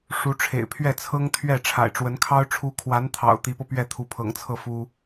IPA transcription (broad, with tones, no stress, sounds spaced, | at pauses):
ʂ u˧˥ ʈ͡ʂʰ ḛ˨˩ ɪ̯ pʰ ɥ ɛ˥˩ t͡sʰ ɤ˥ ŋ t̪ʰ ɥ ɛ˥˩ ʈ͡ʂʰ a̰˨˩ ɪ̯ ʈ͡ʂ w ə˧˥ n kʰ ɑ˥ ʊ̯ ʈ͡ʂʰ u˧˥ kʰ w a˧˥ n t̪ʰ ɑ̰˨˩ ʊ̯ t̪ i˧˥ p ɤ˧ p ɥ ɛ˥˩ t̪ʰ u˧˥ pʰ ɤ̰˨˩ ŋ t͡sʰ ɤ˥˩ f u˥